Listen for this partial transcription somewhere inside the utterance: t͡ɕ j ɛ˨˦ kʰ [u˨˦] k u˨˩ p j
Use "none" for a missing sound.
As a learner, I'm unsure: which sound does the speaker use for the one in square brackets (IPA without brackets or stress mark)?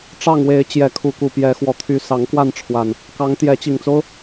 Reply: u˨˦